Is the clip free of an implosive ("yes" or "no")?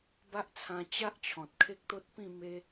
yes